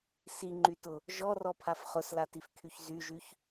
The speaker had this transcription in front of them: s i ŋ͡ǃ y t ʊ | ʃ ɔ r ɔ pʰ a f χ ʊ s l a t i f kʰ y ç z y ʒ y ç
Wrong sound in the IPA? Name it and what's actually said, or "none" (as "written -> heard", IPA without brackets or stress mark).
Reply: ʃ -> ʒ